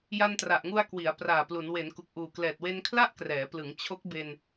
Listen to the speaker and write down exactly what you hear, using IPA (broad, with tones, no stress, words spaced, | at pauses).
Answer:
ja˧ntra˨˩ʔŋu˧a̯ kwi˩˦a̯ praː˨˩plu˩˦n we˩˦nku˨˩k̚ ʔuː˨˩klɛː˨˩t̚we˧n kʰla˥˩ʔkrɛː˩˦plɯ˩˦ŋ t͡ɕʰo˦˥k̚be˧n